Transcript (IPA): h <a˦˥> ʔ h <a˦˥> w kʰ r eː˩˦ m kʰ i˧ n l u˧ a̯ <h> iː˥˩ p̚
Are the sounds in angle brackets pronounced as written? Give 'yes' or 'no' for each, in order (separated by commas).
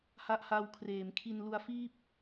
yes, no, no